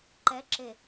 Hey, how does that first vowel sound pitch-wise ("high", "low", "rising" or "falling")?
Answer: rising